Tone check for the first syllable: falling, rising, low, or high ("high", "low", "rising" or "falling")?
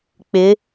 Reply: rising